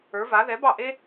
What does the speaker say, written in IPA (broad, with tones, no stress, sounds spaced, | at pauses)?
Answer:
ə˞˨˥ v a˨˥ ð ɛ˨˥ b ɑ˥˩ ʔ e˥